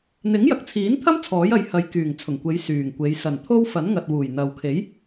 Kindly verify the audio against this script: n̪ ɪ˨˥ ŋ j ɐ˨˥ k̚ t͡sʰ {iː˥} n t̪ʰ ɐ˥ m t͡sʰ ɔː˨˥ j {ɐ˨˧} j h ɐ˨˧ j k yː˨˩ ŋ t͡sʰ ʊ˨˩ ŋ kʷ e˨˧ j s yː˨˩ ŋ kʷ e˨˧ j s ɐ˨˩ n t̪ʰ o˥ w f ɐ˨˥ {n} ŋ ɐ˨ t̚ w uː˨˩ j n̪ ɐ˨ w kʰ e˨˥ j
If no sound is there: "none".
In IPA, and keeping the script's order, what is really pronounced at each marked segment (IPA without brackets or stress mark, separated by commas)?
iː˨˥, ɐ˨˥, n